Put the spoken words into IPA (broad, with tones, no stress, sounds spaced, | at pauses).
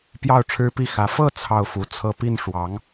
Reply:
p j ɑ˥˩ ʊ̯ ʈ͡ʂʰ ɻ̩˥ p i˥˩ x ä˧˥ f ɤ˥˧ t͡sʰ ɑ˥˩ ʊ̯ f u˨˩ t͡sʰ ɤ˥˧ p i˥˩ n ʂ w ɑ˧˥ ŋ